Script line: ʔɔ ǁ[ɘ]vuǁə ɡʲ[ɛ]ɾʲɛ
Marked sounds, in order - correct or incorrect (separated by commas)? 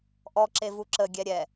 incorrect, correct